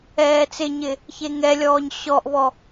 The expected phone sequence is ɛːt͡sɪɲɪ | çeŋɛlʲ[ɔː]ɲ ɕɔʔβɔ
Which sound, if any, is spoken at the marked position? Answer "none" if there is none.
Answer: ɔː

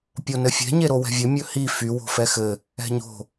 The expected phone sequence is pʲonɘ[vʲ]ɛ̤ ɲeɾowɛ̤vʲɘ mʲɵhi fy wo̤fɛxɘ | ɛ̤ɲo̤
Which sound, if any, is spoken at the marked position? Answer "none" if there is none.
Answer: fʲ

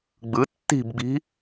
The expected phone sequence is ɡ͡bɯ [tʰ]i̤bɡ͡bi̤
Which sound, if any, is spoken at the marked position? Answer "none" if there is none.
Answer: tː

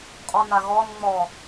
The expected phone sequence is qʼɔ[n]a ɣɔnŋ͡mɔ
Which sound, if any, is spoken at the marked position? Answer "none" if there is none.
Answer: n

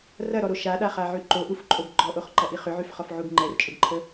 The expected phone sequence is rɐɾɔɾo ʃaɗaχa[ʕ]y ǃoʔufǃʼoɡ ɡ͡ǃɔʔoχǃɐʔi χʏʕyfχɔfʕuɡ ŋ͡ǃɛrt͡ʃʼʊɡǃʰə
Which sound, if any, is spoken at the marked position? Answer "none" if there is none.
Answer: ʕ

